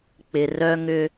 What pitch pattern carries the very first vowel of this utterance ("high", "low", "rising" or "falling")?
low